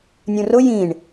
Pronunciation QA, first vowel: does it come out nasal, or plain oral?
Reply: nasal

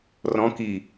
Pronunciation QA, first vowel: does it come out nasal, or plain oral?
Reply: nasal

